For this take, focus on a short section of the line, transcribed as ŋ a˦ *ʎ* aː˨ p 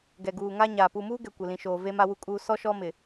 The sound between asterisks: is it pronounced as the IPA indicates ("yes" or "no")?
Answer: no